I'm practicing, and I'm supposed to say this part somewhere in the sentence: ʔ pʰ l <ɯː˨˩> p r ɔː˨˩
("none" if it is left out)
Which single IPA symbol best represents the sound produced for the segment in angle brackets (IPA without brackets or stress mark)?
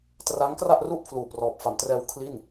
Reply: uː˨˩